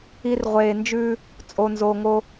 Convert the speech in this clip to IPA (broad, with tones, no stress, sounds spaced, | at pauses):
i˨ r ʁʷ eː˨ n d͡ʒ ʉː˦ | t͡sʼ o˨ n z oː˨ ŋ oː˦